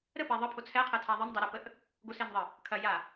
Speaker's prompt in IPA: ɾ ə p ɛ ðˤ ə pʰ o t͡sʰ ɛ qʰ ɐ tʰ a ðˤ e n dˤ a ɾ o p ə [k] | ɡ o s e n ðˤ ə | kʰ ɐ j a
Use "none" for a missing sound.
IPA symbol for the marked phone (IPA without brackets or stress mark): ʔ